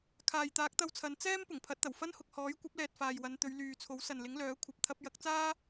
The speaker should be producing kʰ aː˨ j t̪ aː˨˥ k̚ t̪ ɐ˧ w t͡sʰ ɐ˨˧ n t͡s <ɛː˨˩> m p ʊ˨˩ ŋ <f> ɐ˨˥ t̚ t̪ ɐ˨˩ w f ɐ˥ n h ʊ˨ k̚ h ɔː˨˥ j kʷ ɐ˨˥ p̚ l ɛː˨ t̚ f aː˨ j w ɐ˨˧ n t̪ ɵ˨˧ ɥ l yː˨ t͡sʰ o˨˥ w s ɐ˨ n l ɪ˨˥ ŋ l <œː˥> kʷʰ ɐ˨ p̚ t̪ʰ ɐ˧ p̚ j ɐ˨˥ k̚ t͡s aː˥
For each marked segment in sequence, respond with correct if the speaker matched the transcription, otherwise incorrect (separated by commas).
incorrect, incorrect, incorrect